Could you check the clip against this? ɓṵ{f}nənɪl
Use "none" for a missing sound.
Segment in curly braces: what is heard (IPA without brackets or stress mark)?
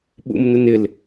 m